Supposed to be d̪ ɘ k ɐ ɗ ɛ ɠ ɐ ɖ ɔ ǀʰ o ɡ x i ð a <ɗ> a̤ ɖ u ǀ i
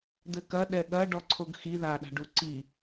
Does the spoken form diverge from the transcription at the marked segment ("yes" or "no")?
no